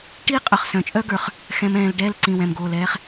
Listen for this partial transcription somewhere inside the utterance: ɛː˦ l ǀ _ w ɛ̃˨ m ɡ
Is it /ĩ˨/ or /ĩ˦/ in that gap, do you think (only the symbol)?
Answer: ĩ˨